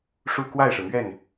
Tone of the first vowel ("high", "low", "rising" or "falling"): falling